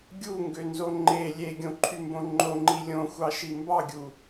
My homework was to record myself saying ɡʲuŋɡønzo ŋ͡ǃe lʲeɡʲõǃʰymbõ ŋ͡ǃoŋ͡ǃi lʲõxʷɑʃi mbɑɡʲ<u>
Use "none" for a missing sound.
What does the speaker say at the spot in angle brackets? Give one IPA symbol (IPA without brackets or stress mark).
u